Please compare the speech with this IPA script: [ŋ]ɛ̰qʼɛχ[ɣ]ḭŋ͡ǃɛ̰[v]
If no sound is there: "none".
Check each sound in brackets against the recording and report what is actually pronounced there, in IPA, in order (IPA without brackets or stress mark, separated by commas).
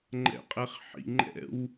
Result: ŋ͡ǃ, ħ, w